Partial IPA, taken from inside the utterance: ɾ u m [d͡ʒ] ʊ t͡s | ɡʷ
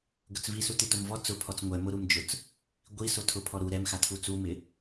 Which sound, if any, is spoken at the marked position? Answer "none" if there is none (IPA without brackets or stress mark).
d͡ʒ